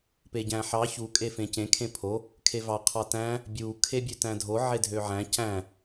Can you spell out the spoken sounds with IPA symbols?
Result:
p e ɟ æ̃ ħ ɑ ç u kʼ e f ẽ c ẽ kʰ ẽ pʰ o | kʰ e v ɑ qʰ ɑ t æ̃ | bʲ u kʰ e bʲ ø t æ̃ dʱ o ʕ e dʱ ø ʕ æ̃ c æ̃

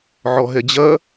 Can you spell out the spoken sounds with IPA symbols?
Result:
ʕ ɔ ɦ ɛ d͡ʑ ɐ

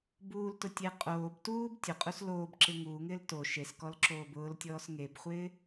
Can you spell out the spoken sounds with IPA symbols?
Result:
b uː l t ʊ tʲ e qʼ oː b t uː b tʲ ʊ qʼ u s l oː b ǁ ɪ ŋ uː ŋ ɪː l t o ʃ e s k ɔ l ǁ oː b ʊː l tʲ ɔː s ŋ e b χʷ ɪː

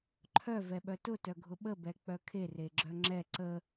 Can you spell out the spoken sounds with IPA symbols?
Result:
ǃʰ œ v ɛ ɓ œ t ʊ t œ ɡʱ ʊ ɓ ə b ɛ k͡p œ kʰ e r e ɡ͡ǁ œ ŋ͡ǁ ɛ ǀ ə

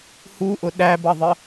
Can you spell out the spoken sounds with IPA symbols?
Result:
h u ʔ ʊ ɗ æ b ʌ ðˤ ə

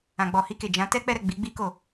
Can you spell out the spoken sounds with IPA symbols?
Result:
ã˨ ɡ͡b ɔ˨ h i˧ k e˨ d͡ʒ ã˨˦ t ɛ˦ k͡p ɛ˦ ɾ ɛ˦˨ ɡ͡b i˨˦ ɡ͡b i˦ k o˦˨

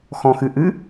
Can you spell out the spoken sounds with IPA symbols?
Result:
x ɔ̃ x ɨ ʔ ɨ

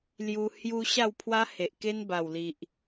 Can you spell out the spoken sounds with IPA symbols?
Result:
l j u˧ h j u˧ ɕ a˥˧ w pʰ w a˦ h e˨ ʔ k e˦ n b a˨˩ w l i˨ ʔ

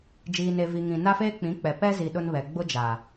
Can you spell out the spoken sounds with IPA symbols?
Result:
d͡ʒ iː˨ n e˨ v i˨ ŋ ĩ˨ n a˦ f eː˦ k͡p ĩ˨˦ k͡p ɛ˨ p ɛ˦ z i˨ ɗ ʊ˦ n β ɛ˨ ɡ͡b ʊ˦ d͡ʒ a˨

